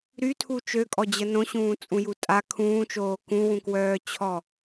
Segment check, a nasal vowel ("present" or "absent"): present